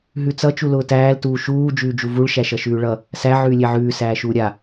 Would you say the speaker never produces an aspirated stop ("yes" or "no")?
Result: yes